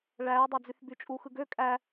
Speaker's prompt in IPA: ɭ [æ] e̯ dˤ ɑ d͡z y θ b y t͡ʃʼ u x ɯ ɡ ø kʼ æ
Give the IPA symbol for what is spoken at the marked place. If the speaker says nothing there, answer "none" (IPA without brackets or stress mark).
æ